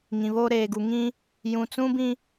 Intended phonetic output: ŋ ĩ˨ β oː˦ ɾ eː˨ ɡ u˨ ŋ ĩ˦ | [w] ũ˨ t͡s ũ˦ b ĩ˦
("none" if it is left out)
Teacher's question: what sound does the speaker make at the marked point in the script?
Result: j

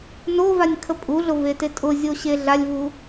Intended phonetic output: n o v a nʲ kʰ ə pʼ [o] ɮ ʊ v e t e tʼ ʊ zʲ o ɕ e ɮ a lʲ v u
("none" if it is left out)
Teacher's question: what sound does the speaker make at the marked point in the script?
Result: u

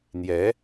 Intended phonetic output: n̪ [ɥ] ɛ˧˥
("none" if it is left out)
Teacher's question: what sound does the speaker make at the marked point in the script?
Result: j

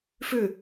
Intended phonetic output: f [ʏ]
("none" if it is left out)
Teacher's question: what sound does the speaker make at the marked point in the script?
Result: ʏ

